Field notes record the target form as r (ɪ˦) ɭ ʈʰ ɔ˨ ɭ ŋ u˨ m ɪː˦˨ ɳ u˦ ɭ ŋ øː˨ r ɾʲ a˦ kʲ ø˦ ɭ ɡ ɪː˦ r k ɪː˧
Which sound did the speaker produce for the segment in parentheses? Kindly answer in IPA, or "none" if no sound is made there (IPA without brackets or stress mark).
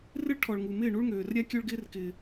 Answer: ɪ˦